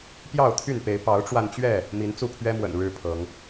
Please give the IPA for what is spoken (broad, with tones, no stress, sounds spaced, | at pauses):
p j ɑ˥˨ ʊ̯ t̪ʰ y˥˨ n p e˨˦ ɪ̯ p ɑ˨˦ ʊ̯ ʈ͡ʂ w a˧ n t͡ɕ ɥ ɛ˥˨ | m i˨˦ n t͡s u˥˨ pʰ ɥ ɛ˦ m w ə̰˨˩ n ɻ ɻ̩˦ pʰ ɤ˨˦ ŋ